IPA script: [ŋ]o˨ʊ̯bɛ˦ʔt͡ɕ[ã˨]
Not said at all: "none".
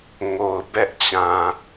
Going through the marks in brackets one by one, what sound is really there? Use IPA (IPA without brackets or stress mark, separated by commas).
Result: ŋ, ã˨